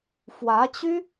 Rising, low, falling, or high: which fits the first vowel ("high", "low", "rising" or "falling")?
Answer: rising